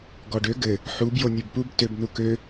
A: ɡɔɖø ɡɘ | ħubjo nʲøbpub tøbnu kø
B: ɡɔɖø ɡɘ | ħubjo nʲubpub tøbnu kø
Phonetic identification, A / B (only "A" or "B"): A